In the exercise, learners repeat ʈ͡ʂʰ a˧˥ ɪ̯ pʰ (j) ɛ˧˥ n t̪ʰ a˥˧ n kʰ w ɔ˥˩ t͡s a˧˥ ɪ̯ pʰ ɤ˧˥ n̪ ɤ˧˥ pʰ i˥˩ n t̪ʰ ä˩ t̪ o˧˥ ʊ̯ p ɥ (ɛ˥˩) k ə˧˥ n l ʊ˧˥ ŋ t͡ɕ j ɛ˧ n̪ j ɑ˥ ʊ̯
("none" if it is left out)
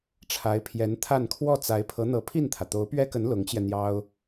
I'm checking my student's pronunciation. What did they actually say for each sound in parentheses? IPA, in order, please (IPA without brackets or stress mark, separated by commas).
j, ɛ˥